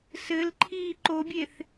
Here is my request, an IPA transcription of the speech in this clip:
s ɘ l ǃʰ iː ǃ o bʲ e θ

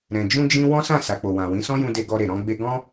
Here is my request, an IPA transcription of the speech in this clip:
ɾ ɛ̃˨ d͡ʒ ũ˧ d͡ʒ ĩ˧ w ɔ̃˦ s ã˦˨ s a˨ k͡p o˨ w ã˨ w ĩ˨˦ s ɔ̃˦ j ũ˧ d e˧ ɡ ɔ˧ ɾ e˨ ɾ ɔ̃˧ ɡ͡b e˧ ɡ ɔ̃˦

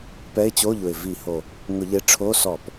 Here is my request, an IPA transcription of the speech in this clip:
p ɛ˧˥˧ ɪ̯ t͡ɕ o˧˥˧ ʎ ʊ˨˩ ɪ̯ v i˧˩˧ h o˨˩ | ŋ ʊ˧˩˧ ʎ e˨˥ ʈ͡ʂʰ o˧˥˧ s ɔ˧˩˧ p

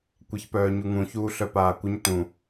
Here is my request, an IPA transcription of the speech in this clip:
kʷ ɛ ç p œː ɲ u ŋ ũ ç uː ɬ œ p aː kʷ ə ɲ t ũ

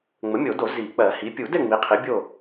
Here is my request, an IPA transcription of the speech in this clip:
ŋ͡m ə˩˥ mʲ o˨˩˦ d o˨˩˦ z i˨˩˦ k͡p ɜ˨˩˦ h i˩˥ pʲ u˨˩˦ d ɛ˥˨ ŋ͡m i˩˥ qʰ i˩˥ bʲ o˥˨

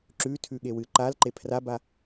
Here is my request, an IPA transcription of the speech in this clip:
ǁ ʉ tʰ ʉ ɠ e w ɨ ǃ a l ǃ e pʰ r a b a

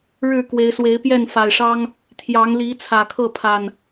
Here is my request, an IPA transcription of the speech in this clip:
ɻ ɻ̩˥˨ k w e˨˦ ɪ̯ s w e˨˦ ɪ̯ p j ɛ˥˨ n f a˨˩ ɪ̯ ʂ ɑ˦ ŋ | t̪ʰ j ɑ˨˦ ŋ l i˨˦ t͡sʰ ä˨˩ kʰ ɤ˥˨ pʰ a˨˩ n

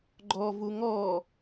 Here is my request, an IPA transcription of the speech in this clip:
ɡ͡ǃ ɔ v u ŋ ɔ

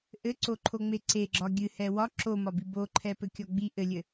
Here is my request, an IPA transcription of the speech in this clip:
ʔ ɘ ǀ o ǃʰ o ŋ͡m e ǀ e ɡ͡ǁ ɒ ɡʲ ɨ h ɛ w ɒ ǁ o m ɒ b i b o ǃʰ ɛ p ɘ kʲ ɒ ɡ͡b i ʔ ɘ lʲ ɘ

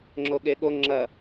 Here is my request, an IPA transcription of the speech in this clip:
ŋ͡ǁ o ɠ e ɠ o ŋ͡ǁ ɐ

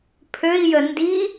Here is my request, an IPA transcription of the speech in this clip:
pʰ ø i̯ j ə n d i

